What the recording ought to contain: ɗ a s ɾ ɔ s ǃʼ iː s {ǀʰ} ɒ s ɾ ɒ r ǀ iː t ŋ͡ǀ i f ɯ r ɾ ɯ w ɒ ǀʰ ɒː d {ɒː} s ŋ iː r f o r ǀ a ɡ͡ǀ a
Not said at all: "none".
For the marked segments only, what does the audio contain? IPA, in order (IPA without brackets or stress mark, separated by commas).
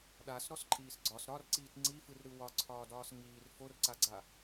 ɡ͡ǀ, ɒː